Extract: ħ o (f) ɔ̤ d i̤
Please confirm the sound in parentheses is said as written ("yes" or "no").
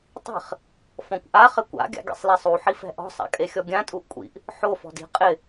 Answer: yes